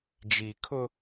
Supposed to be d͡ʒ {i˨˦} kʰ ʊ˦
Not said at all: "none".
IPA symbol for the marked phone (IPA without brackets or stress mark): i˨